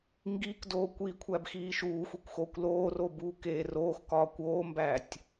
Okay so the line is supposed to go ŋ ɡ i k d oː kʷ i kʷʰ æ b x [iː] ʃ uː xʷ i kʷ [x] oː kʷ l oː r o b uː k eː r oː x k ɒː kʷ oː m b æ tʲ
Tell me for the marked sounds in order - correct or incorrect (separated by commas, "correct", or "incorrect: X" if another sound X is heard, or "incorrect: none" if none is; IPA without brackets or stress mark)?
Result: correct, correct